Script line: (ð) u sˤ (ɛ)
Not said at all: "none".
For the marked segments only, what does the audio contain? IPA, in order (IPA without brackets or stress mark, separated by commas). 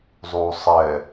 zˤ, ɛ